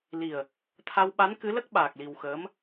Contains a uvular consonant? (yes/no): no